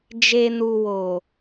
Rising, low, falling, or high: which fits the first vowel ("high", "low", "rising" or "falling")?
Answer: low